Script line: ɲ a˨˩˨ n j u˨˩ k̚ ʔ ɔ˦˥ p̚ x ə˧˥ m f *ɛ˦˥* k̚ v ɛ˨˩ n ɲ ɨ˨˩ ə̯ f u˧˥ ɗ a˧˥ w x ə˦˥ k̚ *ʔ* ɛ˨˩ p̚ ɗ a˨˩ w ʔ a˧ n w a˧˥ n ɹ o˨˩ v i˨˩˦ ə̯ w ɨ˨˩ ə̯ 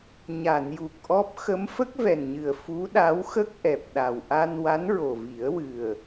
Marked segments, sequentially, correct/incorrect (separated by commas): incorrect, correct